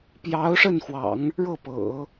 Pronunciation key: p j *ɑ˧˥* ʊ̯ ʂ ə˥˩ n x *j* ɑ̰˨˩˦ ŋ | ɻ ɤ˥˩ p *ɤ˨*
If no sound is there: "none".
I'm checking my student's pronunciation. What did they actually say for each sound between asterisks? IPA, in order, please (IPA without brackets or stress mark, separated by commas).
ɑ˧˥, w, ɤ̰˨˩˦